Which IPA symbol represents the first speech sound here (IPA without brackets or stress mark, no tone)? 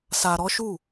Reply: s